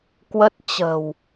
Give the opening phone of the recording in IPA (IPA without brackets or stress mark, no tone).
k